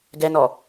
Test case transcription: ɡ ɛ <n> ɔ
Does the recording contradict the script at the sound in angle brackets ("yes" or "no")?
no